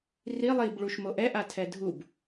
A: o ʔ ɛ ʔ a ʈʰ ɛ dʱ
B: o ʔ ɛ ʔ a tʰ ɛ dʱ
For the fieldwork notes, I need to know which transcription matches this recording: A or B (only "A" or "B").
B